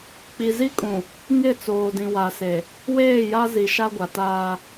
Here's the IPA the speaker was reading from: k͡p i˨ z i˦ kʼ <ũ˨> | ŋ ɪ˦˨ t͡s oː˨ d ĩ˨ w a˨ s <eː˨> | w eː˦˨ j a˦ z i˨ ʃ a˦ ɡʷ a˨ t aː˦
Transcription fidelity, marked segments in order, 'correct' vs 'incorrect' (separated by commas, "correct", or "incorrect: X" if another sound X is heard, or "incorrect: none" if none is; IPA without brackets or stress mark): correct, incorrect: e˨